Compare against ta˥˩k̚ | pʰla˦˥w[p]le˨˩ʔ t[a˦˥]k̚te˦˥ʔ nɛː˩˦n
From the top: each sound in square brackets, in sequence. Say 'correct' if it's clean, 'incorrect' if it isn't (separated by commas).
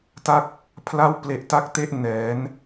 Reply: correct, correct